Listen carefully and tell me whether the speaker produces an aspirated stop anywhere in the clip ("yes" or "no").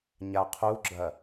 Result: yes